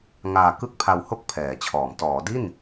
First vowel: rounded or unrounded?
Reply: unrounded